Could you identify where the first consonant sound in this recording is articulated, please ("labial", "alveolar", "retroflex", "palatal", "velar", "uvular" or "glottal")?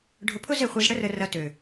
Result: retroflex